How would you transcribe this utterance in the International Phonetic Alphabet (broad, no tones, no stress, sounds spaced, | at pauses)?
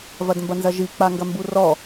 v ɐ d m b ɐ n z ɐ ʒ i k͡p a ŋ ɡ ɐ m b u r ɔ